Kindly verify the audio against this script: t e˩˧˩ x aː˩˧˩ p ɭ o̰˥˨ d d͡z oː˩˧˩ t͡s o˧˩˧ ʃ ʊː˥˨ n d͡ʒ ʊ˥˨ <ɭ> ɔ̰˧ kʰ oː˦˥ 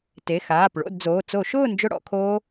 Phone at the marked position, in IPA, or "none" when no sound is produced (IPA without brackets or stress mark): ɽ